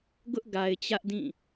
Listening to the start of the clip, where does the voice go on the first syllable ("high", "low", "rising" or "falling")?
high